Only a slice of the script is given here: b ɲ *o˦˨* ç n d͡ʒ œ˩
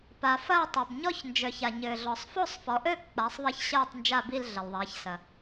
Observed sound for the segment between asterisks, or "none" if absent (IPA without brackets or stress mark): ɔ˦˨